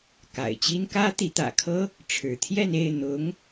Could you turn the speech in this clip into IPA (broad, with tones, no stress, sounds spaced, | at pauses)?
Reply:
k a̰˨˩ ɪ̯ t͡ɕ i˥ n k ä˥ t̪ i˧˥ t̪ ä̰˨˩ kʰ ɤ˥ | ʈ͡ʂʰ ɻ̩˧˥ t̪ʰ j ɛ˥˧ n e˥˩ ɪ̯ n̪ ʊ˧˥ ŋ